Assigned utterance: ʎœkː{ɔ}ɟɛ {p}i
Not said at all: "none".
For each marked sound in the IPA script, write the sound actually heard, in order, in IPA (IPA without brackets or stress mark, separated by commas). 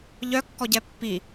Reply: ɔ, pː